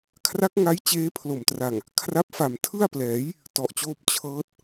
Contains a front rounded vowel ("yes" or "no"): no